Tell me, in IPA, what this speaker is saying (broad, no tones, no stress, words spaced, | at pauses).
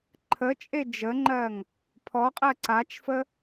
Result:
ǃʰət͡ʃʼe d͡ʒəŋ͡ǃɜŋ | pʰɔqʼɜ ǀat͡ʃfə